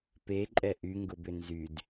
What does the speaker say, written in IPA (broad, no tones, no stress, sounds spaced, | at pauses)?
p e ǃʼ ɛ ʔ y ŋ ɡ ʊ b ʏ n z y d